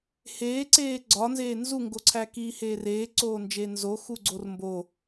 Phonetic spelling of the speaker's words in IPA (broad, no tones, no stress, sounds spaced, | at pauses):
h eː ǀ eː ɡ͡ǀ ɒ n z eː n z u ŋ ɡ o ǀʰ æ k iː h eː r eː ǀ oː n d͡ʒ eː n z o x u ɡ͡ǀ o r m b o